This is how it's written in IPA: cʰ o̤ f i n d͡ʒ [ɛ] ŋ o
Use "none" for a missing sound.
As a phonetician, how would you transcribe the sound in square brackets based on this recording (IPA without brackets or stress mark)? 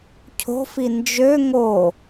ø